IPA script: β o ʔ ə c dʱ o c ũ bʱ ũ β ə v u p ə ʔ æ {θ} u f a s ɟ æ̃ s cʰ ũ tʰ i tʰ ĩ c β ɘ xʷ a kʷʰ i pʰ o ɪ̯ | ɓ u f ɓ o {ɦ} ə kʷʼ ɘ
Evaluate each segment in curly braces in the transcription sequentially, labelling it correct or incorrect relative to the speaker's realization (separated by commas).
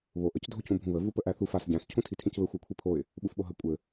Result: correct, correct